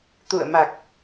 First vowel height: high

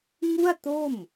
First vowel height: high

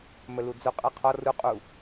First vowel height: mid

